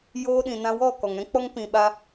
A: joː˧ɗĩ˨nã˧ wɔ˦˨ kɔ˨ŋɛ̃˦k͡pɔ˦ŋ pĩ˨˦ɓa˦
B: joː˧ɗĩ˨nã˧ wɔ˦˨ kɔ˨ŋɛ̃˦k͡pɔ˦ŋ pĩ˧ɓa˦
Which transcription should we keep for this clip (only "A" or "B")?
B